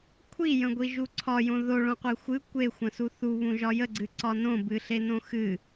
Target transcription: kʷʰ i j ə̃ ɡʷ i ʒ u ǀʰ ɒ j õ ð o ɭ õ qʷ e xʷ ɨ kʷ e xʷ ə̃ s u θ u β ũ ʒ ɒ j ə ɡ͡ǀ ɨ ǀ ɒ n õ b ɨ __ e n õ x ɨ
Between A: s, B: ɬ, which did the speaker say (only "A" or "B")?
B